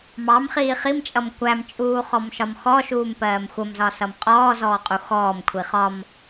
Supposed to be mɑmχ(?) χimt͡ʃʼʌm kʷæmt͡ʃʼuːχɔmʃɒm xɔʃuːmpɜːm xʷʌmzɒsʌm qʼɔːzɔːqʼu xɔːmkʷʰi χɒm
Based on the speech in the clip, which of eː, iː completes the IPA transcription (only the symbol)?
iː